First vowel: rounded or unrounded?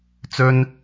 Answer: rounded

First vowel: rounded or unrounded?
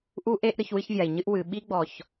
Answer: rounded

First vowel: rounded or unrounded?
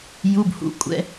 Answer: rounded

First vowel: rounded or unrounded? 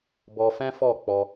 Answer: rounded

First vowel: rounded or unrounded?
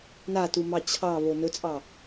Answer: unrounded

